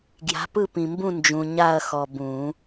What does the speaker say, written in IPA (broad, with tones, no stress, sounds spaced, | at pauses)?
ɡ j a̤˨˥ p ɯ˦˨ p ĩ˨ m b ũ˦˨ n d͡ʒ ũ˨ ɲ a˦˨ ɐ̯ x ɔ˨ b ũ˨˩˦